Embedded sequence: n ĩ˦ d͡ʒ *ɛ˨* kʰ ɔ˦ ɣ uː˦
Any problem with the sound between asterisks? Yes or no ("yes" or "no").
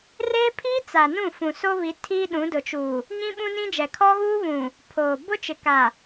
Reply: no